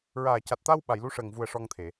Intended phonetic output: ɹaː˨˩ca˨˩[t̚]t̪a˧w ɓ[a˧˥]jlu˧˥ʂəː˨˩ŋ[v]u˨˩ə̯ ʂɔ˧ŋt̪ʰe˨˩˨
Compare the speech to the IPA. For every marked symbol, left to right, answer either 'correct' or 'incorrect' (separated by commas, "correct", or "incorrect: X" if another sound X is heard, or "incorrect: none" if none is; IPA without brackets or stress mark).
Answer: correct, incorrect: a˨˩˨, correct